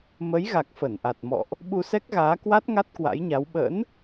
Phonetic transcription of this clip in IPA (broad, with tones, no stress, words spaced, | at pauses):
mə˨˦j ɣa˨˩k̚fə˧˩nʔa˨˩t̚mɔ̰˧˨ʔ | ɓu˧sɛ˦˥k̚ɣaː˨˦kwa˦˥t̚ ŋa˦˥t̚kwa̰˧˥jɲa˨˦w ɓə̰˧˥n